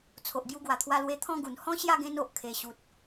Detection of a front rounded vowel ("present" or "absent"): absent